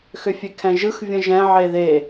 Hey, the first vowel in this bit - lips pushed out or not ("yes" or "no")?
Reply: yes